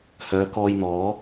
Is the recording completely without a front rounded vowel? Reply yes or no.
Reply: no